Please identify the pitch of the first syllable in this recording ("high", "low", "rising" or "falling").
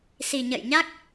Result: low